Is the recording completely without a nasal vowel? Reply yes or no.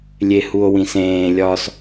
no